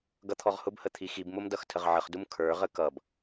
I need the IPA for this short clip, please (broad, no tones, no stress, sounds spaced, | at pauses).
ɡ ʌ t̪ʰ ɔ ʁ h ʊ b h ə t̪ʰ i x i b m ʊ m d ʌ x tʰ ə ʁ ʕ ə χ d u m kʰ ə˞ ʁ ə k ʌ b